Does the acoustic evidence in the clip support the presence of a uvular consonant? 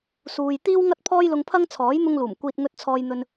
no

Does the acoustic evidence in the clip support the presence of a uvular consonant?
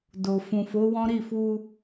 no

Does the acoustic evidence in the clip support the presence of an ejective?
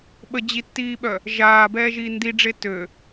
no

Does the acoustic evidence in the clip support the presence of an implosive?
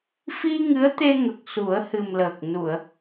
no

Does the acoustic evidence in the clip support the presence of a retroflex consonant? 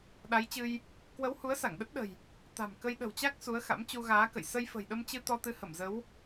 no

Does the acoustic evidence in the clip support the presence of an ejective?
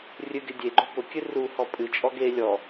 yes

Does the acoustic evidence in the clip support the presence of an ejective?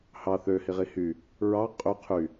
yes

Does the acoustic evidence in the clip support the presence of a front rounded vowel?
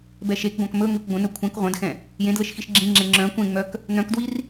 yes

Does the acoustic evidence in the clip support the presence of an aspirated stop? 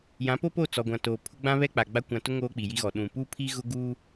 yes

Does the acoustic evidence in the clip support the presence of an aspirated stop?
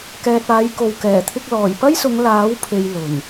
yes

